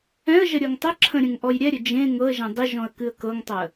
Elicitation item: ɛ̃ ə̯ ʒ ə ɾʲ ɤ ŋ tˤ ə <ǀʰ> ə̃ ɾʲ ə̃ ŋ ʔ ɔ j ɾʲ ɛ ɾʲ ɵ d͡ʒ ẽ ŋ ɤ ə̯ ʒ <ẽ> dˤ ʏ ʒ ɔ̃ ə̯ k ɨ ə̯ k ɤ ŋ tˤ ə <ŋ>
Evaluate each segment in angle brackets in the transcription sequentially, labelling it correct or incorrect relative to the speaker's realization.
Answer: incorrect: ǁʰ, incorrect: ɛ̃, incorrect: none

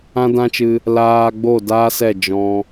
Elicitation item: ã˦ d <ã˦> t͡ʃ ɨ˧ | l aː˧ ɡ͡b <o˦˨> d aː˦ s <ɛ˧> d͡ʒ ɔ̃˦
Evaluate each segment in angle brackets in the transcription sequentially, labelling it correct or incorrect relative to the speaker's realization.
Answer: correct, correct, incorrect: ɛ˦˨

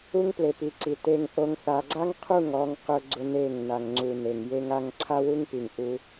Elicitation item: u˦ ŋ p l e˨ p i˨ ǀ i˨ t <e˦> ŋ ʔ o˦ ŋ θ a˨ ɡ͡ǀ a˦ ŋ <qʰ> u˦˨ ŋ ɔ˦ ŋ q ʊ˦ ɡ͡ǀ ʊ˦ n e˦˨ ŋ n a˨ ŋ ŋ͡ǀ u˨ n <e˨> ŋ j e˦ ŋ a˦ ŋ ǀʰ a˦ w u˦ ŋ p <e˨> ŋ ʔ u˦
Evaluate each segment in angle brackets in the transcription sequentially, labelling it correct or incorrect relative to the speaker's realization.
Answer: correct, correct, correct, incorrect: i˨

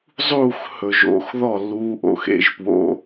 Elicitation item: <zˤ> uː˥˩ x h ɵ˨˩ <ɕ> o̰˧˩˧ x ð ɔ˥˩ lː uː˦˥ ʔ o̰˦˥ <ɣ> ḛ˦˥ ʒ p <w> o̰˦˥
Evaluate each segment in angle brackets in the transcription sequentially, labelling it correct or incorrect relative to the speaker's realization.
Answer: correct, incorrect: ʒ, incorrect: x, correct

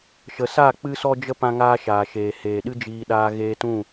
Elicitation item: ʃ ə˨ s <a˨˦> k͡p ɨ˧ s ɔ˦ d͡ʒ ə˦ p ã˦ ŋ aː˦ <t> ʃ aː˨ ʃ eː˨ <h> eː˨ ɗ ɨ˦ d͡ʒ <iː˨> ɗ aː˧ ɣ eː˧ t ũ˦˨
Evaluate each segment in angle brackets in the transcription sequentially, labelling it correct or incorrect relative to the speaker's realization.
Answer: incorrect: a˦˨, incorrect: none, correct, incorrect: iː˧

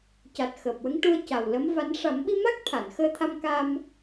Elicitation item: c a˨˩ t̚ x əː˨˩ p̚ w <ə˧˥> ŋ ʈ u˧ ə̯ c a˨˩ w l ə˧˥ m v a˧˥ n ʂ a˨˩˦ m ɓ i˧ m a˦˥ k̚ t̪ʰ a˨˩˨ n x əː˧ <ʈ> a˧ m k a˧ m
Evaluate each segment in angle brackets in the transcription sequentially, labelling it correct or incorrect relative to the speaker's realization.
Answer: correct, incorrect: t̪ʰ

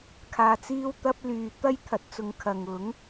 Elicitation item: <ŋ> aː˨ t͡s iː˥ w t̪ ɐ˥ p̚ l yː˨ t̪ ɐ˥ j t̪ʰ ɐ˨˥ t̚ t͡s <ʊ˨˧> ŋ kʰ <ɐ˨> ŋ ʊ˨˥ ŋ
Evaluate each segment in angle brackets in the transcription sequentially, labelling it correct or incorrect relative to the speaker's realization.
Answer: incorrect: kʰ, correct, correct

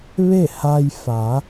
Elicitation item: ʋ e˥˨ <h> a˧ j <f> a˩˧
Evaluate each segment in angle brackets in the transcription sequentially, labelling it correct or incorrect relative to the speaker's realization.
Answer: correct, correct

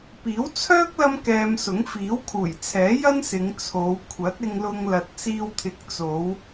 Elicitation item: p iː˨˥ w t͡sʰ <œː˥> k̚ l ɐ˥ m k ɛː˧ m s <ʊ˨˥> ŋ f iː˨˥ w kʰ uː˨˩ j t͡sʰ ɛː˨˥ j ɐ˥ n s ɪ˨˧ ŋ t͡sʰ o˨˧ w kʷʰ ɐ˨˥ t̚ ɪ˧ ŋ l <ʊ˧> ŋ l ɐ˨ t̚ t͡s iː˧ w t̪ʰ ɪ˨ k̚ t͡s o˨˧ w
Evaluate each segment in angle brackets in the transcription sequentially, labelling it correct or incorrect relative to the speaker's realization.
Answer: correct, correct, correct

